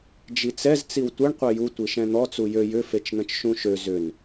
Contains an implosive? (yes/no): no